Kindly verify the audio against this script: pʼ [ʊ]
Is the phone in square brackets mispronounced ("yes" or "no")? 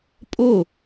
no